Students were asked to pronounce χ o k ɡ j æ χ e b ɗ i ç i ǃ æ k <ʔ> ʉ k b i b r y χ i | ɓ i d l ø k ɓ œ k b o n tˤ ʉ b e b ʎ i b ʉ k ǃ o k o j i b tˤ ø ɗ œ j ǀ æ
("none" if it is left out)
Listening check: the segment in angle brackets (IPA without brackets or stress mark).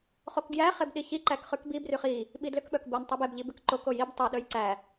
χ